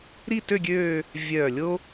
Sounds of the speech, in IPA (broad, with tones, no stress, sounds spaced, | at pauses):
ɾ i˥˧ t ø˥˧ ɡʲ øː˥˧ | vʲ œː˧˩ lʲ o˥